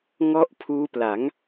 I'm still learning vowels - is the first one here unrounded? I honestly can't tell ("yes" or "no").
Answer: no